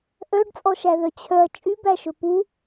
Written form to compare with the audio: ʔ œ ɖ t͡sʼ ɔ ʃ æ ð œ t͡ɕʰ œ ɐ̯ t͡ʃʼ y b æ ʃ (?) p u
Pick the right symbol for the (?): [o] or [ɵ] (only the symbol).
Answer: ɵ